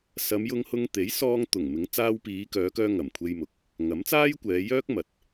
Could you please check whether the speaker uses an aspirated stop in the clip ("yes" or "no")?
yes